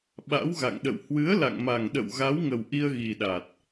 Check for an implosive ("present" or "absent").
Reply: present